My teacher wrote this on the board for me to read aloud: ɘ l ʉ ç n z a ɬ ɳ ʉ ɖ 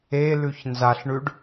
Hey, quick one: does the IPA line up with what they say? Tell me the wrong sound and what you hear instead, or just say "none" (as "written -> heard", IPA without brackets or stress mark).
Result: ɘ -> e